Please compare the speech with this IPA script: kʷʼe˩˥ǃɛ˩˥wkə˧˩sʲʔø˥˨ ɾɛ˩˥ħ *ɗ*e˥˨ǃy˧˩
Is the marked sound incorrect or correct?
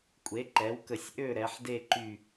incorrect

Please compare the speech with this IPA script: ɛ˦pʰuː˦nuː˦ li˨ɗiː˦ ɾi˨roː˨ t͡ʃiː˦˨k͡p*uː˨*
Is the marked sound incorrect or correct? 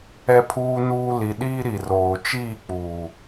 correct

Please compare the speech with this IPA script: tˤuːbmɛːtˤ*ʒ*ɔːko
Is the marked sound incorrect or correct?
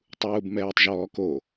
correct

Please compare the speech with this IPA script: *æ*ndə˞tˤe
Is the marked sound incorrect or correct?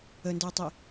incorrect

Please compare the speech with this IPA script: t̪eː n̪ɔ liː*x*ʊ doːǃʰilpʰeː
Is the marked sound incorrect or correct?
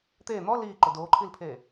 incorrect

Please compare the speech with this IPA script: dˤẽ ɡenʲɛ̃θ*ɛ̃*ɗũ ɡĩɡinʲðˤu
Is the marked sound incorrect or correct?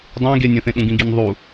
incorrect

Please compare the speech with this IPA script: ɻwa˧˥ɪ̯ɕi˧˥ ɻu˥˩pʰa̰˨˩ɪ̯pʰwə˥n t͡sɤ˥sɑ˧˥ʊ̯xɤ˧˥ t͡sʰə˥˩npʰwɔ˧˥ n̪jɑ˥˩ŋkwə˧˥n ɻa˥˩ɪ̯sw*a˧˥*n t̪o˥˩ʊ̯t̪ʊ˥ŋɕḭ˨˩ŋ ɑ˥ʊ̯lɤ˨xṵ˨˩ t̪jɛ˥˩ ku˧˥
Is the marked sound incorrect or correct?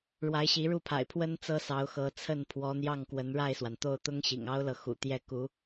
incorrect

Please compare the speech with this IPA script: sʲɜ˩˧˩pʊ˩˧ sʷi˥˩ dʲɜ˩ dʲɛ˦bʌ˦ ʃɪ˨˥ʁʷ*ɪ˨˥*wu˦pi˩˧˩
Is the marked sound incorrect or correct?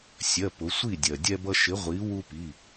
incorrect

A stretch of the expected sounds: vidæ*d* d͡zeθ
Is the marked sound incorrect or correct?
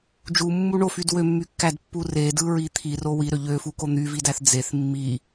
incorrect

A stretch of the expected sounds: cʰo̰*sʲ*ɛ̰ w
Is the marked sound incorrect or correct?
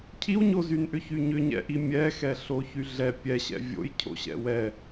incorrect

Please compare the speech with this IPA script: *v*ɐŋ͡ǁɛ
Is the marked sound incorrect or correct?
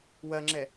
incorrect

